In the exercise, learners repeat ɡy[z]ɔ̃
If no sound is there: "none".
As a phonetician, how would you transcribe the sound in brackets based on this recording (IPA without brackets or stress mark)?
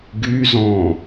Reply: z